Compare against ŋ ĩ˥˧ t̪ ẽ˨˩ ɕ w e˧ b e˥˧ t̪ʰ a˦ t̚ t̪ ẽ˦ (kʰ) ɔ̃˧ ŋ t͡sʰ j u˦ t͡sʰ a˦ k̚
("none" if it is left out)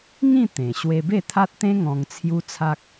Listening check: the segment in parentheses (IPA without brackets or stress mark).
ŋ